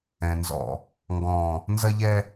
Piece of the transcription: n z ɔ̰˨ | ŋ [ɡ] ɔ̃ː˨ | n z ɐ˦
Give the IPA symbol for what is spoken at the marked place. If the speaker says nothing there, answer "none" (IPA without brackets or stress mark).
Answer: ɡ